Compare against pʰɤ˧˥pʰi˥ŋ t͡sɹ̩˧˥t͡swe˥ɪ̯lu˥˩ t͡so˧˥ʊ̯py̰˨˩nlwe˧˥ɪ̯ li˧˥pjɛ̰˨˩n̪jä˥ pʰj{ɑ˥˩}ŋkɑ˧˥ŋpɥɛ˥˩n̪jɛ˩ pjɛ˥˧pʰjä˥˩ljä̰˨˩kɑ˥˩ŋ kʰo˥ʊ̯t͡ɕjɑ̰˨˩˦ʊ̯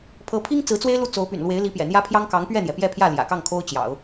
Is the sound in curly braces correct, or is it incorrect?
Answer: incorrect: ɑ˥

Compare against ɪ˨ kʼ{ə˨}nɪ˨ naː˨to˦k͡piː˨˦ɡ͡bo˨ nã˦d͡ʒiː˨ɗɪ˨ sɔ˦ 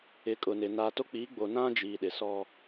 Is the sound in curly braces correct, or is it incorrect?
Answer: incorrect: ʊ˨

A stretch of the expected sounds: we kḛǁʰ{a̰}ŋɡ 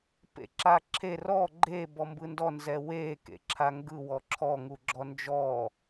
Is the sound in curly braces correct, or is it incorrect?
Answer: incorrect: a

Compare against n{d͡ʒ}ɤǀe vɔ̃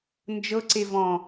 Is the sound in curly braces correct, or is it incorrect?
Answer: correct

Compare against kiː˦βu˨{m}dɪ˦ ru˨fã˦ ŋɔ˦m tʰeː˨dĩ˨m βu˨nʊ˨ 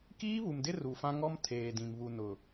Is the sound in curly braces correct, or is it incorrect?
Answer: correct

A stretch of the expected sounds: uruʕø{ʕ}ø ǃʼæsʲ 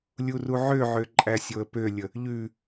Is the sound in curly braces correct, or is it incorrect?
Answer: correct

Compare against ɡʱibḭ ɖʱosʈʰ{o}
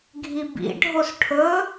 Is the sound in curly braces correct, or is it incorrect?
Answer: incorrect: ɵ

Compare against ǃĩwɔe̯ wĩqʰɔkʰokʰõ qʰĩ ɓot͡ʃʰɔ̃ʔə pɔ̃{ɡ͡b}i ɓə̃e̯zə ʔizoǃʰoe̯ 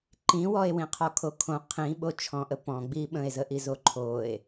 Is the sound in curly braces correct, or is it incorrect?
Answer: correct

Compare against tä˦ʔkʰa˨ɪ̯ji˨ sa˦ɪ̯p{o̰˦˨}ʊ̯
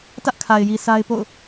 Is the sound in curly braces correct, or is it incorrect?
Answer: correct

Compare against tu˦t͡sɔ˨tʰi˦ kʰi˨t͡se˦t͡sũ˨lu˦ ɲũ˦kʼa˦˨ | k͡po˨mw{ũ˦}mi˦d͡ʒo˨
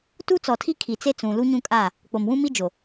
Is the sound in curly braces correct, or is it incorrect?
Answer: correct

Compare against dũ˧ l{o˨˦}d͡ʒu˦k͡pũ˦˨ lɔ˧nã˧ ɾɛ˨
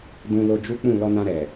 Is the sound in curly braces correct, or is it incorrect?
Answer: incorrect: o˧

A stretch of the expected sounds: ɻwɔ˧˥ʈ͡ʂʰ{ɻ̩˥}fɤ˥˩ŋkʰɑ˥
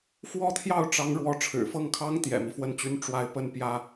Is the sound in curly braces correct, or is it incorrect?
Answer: incorrect: ɻ̩˨˩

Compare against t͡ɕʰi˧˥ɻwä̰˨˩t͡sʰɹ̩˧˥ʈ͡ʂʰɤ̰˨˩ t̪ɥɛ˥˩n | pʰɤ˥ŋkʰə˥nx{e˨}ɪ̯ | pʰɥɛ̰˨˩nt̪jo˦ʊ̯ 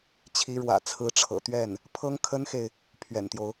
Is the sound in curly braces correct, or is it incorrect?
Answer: correct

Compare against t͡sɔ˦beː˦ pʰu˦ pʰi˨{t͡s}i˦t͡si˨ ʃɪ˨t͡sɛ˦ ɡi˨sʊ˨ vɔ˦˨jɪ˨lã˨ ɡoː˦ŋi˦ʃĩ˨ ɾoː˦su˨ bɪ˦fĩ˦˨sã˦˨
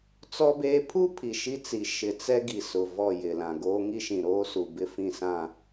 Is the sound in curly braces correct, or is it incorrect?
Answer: incorrect: ʃ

